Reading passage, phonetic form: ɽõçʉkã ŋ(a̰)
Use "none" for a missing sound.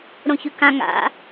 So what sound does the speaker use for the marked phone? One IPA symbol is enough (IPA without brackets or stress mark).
a̰